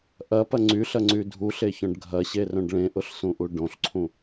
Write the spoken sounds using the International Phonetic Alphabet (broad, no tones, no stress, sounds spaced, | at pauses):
ʔ ɐ p ɐ ŋ͡ǀ y ɬ ɐ ŋ͡ǀ y dʱ u ɬ e ç œ̃ ɖ ɡʱ ɐ ɕ e r œ̃ ɖ ɭ ẽ ʔ ʊ ɬ s ũ ʔ u ɖ õ ɬ ǀʰ ũ